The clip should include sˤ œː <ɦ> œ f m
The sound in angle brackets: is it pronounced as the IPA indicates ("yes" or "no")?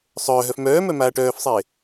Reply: yes